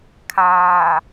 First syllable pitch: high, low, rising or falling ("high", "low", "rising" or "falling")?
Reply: low